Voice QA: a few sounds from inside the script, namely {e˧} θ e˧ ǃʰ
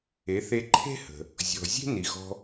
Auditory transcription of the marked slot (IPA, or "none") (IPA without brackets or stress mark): e˩˥